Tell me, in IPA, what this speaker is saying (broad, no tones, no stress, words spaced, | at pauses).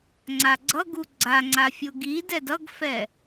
ŋ͡ǀaɡ͡ǀʌɡu ɡ͡ǀaŋ͡ǀafʲo ɡidɛd ʌɡfɛ